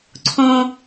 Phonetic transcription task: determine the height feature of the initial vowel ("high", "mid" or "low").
mid